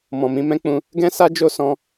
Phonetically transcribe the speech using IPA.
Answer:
m ɔ̃˨ m ĩ˨˦ m ɛ̃˦ k͡p ũ˧ | ɡ ɛ̃˦ s a˦ d͡ʒ o˦ s ɔ̃˦

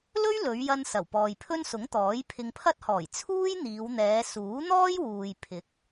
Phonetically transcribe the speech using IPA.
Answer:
l ɵ˥ ɥ l ɵ˨˧ ɥ j ɐ˧ n s ɐ˨˩ w p ɔː˨ j pʰ ɵ˥ n s ʊ˨˥ ŋ t̪ ɔː˨˥ j pʰ ɪ˧ ŋ pʰ ɐ˥ t̚ h ɔː˨˩ j t͡sʰ uː˥ j n̪ iː˨˧ w n̪ ɛː˨˧ s uː˨˥ n̪ ɔː˥ j w uː˨ j pʰ ɪ˨˥ k̚

